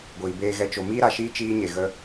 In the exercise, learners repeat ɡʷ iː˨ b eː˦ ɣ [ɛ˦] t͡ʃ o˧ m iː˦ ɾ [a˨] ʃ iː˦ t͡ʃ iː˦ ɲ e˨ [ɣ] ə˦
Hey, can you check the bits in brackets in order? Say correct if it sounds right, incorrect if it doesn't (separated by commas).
correct, correct, correct